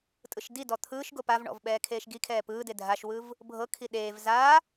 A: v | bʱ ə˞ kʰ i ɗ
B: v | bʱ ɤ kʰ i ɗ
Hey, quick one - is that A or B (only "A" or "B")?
B